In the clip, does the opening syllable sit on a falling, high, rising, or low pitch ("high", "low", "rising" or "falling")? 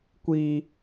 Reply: high